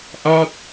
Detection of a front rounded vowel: absent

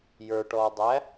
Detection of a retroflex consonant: present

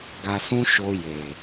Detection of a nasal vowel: present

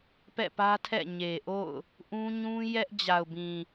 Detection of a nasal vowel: present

